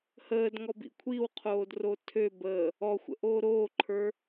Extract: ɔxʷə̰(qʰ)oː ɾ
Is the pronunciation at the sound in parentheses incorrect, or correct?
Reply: incorrect